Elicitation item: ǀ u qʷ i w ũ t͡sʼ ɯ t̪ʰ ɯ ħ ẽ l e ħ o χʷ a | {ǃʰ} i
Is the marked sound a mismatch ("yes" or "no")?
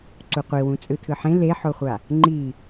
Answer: yes